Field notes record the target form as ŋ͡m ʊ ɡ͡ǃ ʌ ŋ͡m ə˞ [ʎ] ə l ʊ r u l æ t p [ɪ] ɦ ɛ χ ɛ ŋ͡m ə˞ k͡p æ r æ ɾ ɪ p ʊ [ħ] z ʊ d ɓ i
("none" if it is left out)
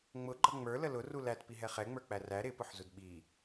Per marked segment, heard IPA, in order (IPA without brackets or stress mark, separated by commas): l, i, ħ